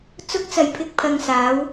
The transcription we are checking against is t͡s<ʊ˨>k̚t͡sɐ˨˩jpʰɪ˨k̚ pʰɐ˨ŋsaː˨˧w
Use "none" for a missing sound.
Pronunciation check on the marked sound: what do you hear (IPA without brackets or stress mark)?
ʊ˨˥